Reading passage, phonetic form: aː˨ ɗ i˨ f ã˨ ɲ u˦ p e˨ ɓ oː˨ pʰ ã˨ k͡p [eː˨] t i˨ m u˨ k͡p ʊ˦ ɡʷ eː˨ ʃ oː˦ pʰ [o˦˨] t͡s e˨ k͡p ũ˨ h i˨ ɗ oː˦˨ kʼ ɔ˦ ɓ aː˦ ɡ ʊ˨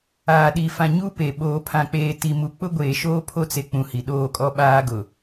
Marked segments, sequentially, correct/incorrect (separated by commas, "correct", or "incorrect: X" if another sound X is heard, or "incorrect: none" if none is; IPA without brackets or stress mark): correct, incorrect: o˦